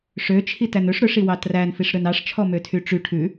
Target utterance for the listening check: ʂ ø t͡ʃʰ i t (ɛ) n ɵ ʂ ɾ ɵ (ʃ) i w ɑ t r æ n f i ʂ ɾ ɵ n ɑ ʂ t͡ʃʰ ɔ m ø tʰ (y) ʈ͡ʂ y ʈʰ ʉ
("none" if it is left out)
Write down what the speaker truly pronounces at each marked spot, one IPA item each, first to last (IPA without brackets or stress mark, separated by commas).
æ, ʂ, y